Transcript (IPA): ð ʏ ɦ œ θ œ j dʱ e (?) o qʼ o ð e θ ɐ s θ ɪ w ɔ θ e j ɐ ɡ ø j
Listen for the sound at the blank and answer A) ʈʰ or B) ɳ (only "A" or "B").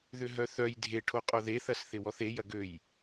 A